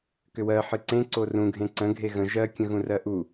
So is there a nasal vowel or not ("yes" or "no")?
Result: yes